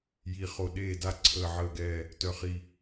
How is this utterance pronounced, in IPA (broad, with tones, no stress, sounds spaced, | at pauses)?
j i˥˧ χ o˥˧ ɗ eː˥˧ d a˥˧ ǀʰ əː˥˧ ʕ əː˥˧ ɡ ɛː˥˧ | t œ˥˧ χ i˥˧